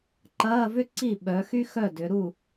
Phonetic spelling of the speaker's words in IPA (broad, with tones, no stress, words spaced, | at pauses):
ǃɐː˧˥˧vʏ˥ ǀi˥˩ɓœ˩˧xy˥ xœ˥˩dʏ˩˧ɾu˥˩